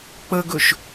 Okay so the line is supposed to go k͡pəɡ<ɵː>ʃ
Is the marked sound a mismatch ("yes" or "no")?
yes